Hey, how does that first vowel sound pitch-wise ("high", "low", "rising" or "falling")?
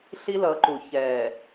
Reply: high